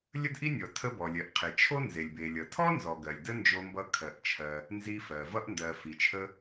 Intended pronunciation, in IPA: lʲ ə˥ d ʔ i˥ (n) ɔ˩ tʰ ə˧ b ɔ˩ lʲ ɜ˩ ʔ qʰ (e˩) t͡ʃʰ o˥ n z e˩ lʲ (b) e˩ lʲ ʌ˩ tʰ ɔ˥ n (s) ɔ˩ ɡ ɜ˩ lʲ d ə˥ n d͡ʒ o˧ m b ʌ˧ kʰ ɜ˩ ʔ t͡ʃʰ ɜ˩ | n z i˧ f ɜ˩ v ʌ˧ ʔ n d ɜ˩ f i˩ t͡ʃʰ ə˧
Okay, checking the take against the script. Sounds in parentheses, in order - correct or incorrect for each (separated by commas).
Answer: incorrect, correct, correct, incorrect